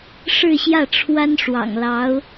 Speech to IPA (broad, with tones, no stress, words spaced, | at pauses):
ʂɻ̩˥˧ɕjä˥˩ ʈ͡ʂʰwa˥n ʂwɑ̰˨˩ŋlɑ˧˥ʊ̯